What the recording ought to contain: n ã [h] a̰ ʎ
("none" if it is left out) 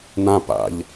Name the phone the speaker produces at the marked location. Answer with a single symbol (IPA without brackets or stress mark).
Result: p